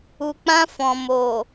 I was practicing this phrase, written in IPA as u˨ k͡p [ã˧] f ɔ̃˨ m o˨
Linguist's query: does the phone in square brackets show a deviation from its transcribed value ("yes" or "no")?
no